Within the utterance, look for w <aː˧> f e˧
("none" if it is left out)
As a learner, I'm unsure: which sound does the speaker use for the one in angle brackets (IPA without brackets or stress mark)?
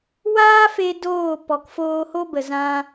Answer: aː˦